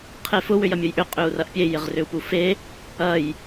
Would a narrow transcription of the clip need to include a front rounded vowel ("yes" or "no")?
yes